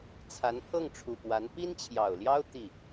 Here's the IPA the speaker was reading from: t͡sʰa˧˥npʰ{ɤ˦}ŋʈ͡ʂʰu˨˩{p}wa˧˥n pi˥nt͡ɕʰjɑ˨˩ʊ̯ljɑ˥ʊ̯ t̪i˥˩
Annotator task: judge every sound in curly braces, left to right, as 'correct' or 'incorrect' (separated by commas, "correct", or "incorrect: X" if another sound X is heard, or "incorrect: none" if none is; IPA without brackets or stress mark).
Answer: incorrect: ɤ˥˩, correct